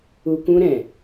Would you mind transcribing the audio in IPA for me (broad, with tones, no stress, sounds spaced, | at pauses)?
u˨ k ũ˧ ɾ ɛ̃˨